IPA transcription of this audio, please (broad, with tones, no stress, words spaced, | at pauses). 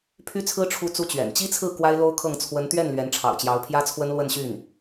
pʰy˥t͡sʰɹ̩˥ ʈ͡ʂʰu˥t͡su˥t͡ɕɥɛ̰˨˩n t͡ɕi˥t͡sʰɹ̩˥˩ kwa˥ɪ̯lo˥ʊ̯kʰɤ˥˩ŋ t͡sʰwə˧˥nt̪ɥɛ˥˩n lɥɛ˧˥nʈ͡ʂʰɑ̰˨˩ʊ̯t͡ɕjɑ˧˥ʊ̯ pʰjä˥t͡sʰwə˥n lwə˥˧nɕy˥˩n